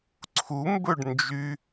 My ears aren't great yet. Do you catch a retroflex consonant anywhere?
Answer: yes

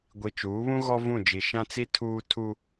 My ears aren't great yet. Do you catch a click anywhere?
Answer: no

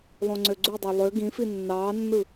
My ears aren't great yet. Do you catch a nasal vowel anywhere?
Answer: yes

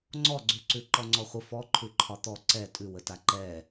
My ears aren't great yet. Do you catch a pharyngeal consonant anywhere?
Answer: no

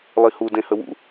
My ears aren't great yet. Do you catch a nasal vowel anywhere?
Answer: yes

